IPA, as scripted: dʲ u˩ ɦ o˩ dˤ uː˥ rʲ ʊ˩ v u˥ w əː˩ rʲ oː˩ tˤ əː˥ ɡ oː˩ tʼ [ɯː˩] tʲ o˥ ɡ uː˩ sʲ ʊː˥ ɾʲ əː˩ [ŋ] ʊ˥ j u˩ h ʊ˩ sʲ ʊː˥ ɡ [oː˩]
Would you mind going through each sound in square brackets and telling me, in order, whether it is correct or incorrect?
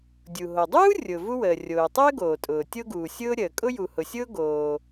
incorrect, incorrect, correct

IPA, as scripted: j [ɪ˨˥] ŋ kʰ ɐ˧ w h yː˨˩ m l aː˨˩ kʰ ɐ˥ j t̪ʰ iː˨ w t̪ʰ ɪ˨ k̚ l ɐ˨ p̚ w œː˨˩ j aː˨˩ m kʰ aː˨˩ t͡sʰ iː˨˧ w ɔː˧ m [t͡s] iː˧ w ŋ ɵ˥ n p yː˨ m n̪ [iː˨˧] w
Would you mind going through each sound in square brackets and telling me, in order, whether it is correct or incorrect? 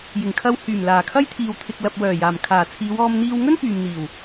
incorrect, incorrect, incorrect

